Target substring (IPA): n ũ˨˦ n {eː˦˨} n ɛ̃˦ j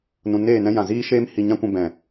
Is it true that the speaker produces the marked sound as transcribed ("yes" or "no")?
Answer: yes